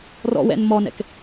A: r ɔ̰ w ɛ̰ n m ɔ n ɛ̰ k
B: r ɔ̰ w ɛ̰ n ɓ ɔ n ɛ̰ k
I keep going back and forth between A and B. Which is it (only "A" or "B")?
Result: A